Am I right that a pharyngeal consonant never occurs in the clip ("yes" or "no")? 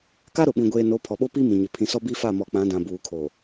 yes